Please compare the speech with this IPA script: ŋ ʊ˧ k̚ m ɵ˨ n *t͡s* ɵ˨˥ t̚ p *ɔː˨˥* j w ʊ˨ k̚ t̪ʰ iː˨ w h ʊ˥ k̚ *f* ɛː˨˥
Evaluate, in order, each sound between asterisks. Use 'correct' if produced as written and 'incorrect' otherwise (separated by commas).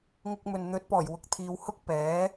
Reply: incorrect, incorrect, incorrect